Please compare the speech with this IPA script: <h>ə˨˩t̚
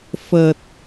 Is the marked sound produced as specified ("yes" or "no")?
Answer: no